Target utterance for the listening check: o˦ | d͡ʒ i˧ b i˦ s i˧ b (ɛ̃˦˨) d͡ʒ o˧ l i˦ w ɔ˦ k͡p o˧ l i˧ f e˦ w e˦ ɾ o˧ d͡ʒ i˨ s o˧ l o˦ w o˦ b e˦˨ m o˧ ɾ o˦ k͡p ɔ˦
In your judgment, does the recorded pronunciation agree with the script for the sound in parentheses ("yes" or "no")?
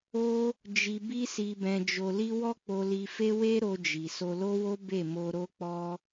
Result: no